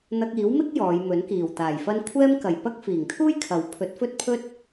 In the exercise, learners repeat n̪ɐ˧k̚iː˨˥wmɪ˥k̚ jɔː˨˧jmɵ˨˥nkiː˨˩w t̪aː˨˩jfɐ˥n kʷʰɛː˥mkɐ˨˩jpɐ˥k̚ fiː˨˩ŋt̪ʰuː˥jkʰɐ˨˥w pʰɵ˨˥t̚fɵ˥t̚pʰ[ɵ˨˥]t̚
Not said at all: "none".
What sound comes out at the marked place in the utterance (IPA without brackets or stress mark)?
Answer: ɵ˥